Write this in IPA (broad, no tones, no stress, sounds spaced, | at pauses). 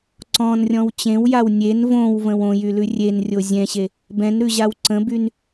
ǀ ɔ̃ n rʲ ɔ̃ w t͡ɕ ẽ w j a w nʲ e n v õ w v ə̃ w õ j y l ʉ rʲ e n rʲ o zʲ ɛ̃ ɕ e | b ɛ̃ n ɾ ʉ ʑ a w ǀ ə̃ b y n